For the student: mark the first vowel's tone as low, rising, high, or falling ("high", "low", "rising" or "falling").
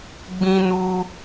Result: high